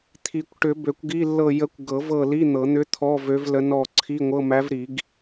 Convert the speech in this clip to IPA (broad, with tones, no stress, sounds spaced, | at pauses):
t̪ʰ i˨˩˦ kʷ ʈ ʏ˨˩˦ b ø˨˩˦ kʷ ɡ i˧˥˧ lː ɤ˦˨ j ə˧˥ kʷ ɡ ɤ˨˩˦ v ɤ˦˨ l i˧˥˧ n̪ ɤ˨˩˦ n̪ ʏ˧˥ t̪ʰ ɔ˧˥˧ v ø˧˥ v l ə˧˥ n ɔ˦˨ ǀʰ i˧˥˧ ŋʷ ɤ˧˥˧ m æ˧˥ v ɾ i˨˩˦ ɡ